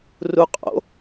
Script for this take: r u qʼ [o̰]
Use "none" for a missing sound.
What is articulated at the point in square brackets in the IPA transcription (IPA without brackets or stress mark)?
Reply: o̰